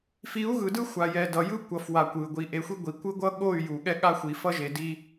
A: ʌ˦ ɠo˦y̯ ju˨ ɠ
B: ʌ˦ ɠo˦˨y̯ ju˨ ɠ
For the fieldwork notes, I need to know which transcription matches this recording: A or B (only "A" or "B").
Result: B